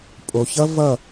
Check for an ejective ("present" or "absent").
present